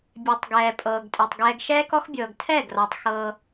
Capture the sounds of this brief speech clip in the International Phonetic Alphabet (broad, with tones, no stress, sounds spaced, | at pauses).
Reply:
bʲ e˨ tˤ ɡ ɛː˨ pʼ ɤː˨ ɡ tʼ e˨ tˤ ɡ ɛː˨ ɡ ʃ ɛː˦ k ɔ˦ x bʲ ɤː˨ ɡ tʰ ɛ˦˨ ɡ r ɔ˨ tˤ x ɤː˦